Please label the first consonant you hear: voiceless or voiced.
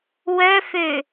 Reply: voiced